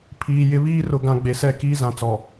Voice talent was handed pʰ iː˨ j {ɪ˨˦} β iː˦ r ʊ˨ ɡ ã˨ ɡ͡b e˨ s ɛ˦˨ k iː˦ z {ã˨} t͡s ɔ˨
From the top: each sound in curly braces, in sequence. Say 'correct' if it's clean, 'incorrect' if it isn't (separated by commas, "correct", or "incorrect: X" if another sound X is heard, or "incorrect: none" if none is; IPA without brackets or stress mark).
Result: correct, correct